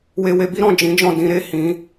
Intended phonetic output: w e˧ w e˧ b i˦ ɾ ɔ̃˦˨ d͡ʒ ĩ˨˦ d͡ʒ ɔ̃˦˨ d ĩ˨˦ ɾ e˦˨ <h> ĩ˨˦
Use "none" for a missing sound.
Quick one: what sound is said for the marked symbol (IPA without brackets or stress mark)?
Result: h